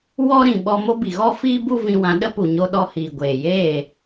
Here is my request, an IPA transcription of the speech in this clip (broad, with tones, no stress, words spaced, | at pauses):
wɔ˦ɾĩ˨ɓɔ˧ mo˦bi˨ɣɔ˦ fiː˦bu˦ vĩ˧wã˧ ɗə˦ pu˨ɲo˧ ɗɔ˧hiː˨ ɡʷeː˨jeː˦˨